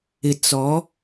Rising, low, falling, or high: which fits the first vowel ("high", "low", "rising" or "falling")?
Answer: low